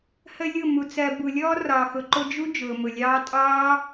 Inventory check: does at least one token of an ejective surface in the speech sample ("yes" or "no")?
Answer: yes